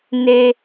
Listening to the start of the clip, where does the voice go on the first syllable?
high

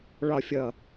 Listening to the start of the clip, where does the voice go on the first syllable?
low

